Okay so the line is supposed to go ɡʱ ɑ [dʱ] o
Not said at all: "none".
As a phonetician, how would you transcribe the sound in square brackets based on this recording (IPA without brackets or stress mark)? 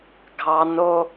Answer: n